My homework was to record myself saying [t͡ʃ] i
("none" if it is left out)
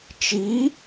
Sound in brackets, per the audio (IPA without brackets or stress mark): t͡ʃ